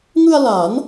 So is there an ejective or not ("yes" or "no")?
no